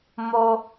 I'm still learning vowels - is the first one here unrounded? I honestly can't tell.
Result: no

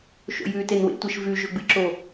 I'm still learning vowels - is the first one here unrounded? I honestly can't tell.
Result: no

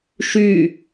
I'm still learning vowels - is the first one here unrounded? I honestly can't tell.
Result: no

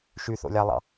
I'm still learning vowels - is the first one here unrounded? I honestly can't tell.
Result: no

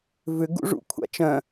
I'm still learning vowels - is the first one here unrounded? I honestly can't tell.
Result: no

